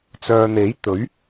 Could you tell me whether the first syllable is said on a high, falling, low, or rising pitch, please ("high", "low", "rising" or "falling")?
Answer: low